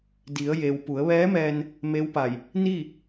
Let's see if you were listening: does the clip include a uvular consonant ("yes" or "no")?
no